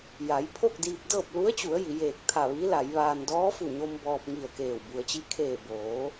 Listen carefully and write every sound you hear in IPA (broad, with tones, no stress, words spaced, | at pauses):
ja˩˧j pʰo˥˨k̚diː˧p̚dɤː˥˨p̚ lu˧˥ə̯t͡ɕu˩˧ə̯ ji˩˧jeː˧˩k̚ t̪ʰa˧˩ʋi˧˥la˩˧jʋaː˧n dɔː˧˥fu˧˩ɲo˧m bɔː˧p̚ŋi˧˩ə̯keː˧˩w bu˩ə̯t͡ɕi˧˥kʰeː˧˩ boː˩˧